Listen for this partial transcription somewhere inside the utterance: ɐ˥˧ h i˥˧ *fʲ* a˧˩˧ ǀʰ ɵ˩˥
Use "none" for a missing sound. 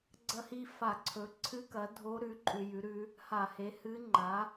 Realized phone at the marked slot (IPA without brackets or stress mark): f